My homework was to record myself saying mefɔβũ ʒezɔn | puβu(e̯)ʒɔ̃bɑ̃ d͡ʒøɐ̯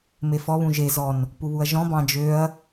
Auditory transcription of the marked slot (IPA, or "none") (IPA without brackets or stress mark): ɐ̯